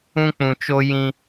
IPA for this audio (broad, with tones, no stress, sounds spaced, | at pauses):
ũ˦ k͡p ũ˨ t͡ʃ o˦ j ĩ˦